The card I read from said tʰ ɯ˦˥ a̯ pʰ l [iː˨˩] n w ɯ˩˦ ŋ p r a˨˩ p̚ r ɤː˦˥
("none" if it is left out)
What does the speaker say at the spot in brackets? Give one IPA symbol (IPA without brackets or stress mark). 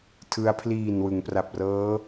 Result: iː˨˩